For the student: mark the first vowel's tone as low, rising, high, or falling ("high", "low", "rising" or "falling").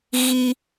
high